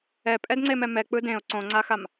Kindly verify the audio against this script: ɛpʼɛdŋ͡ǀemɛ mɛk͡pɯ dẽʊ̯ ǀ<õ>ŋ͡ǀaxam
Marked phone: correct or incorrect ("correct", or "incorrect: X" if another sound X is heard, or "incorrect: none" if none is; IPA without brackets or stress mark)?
correct